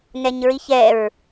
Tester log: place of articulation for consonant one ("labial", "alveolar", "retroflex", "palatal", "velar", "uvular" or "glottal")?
alveolar